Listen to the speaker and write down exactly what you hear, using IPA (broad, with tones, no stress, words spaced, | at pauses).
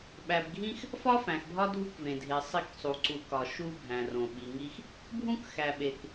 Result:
ɓæ˨bɡʱĩ˦x | fɒ˦fæ̃˨xbʱɒ˦ dʱu˦kvẽ˨dʱe˨sˤi˦˨k sˤu˨ǀu˨kɒ˨ ʃu˦bʱæ̃˨rõ˨ ɓi˨ŋi˦x | bʱũ˦kxæ˨ɓe˨k